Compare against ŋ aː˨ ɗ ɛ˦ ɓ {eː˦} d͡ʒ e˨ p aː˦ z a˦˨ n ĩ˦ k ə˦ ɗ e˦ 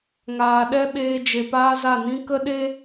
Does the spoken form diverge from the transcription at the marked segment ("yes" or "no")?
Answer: yes